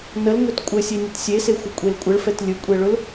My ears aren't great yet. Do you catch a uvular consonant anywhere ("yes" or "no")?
no